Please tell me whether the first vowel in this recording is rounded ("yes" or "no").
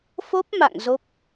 yes